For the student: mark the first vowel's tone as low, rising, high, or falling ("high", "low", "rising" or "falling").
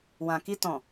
low